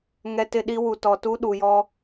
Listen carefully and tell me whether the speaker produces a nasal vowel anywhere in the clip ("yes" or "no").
no